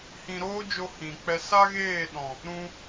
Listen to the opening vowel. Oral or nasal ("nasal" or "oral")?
nasal